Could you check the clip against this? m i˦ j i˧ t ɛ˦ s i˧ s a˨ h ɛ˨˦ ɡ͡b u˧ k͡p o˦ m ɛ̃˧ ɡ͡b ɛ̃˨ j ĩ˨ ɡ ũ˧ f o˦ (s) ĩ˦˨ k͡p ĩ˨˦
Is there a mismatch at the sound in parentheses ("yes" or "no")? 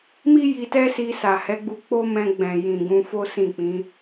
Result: no